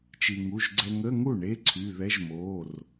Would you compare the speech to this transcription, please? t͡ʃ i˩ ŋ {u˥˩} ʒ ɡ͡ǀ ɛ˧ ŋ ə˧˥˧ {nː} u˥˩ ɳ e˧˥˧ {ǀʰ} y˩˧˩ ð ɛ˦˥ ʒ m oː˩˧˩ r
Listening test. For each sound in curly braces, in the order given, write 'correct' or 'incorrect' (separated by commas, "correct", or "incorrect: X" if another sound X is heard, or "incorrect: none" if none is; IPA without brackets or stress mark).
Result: incorrect: u˩˧˩, incorrect: ŋ, correct